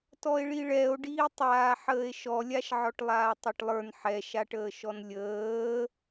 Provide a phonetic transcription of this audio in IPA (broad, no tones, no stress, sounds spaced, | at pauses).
t ɔ e̯ ɭ i ɭ ɛ o̯ ɖ iː tˤ aː ħ əː e̯ ʃ ɔ lʲ a ʃ ʕ ɔ ʈ lˠ aː tˤ a ʈ lˠ ə˞ n ħ ɛ ʃ a ʈ əː ʃ ɔ n lʲ əː